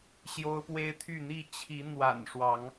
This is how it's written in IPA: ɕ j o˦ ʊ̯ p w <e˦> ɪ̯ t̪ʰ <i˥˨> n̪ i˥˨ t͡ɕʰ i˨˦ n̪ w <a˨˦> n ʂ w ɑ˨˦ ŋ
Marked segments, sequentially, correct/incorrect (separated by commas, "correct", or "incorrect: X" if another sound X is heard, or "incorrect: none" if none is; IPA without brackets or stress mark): correct, incorrect: y˥˨, incorrect: a̰˨˩